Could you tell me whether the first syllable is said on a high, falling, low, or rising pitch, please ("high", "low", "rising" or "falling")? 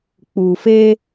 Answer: low